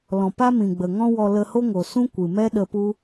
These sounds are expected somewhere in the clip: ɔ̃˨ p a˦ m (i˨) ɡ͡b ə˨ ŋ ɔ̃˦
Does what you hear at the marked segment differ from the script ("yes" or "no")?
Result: yes